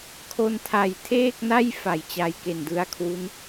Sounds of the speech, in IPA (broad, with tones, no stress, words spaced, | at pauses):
kʰo˧ntʰa˨˩jtʰeː˥˩k̚na˥˩j fa˨˩jt͡ɕa˧jke˨˩ndɯ˧a̯ kʰwu˦˥n